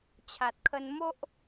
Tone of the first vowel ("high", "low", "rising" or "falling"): low